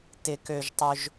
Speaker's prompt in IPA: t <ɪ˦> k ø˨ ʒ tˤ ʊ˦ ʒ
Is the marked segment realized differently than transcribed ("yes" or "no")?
yes